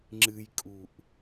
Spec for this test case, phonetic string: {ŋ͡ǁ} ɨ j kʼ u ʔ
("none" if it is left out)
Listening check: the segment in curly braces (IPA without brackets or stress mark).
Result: ŋ͡ǁ